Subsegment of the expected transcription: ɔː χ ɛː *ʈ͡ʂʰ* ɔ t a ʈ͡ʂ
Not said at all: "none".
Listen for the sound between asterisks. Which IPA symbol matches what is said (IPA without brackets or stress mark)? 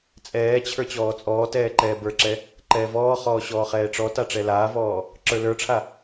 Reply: ʈ͡ʂ